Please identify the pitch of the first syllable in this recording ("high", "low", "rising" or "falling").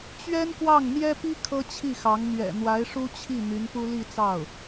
high